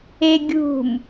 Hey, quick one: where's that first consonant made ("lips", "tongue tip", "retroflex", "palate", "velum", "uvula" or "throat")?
velum